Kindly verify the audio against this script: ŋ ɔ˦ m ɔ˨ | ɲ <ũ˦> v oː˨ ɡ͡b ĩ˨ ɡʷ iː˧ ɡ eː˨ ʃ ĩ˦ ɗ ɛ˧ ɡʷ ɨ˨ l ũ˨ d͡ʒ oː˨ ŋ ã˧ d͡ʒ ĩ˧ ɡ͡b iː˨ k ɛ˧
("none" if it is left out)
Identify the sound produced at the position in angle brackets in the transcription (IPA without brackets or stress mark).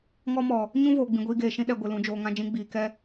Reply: ũ˦